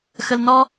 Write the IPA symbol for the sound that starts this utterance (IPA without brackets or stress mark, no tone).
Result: x